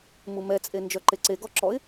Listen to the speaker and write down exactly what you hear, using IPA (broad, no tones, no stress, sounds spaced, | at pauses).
m u m ɛ t͡sʼ e n d͡ʒ œ ǃ e ǀ e ɡ ɔ ǁ ɔ ɪ̯